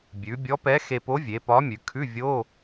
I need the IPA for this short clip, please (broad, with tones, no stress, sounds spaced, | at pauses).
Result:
bʲ ʉ˩˧ bʲ ɔ˧˥ p ɛ˧˥ x e˧ p o˧˥ vʲ e˩˧ p ɒ˧˥ mʲ ʉ˩˧ kʰ ʉ˧˥˧ vʲ o˧˥˧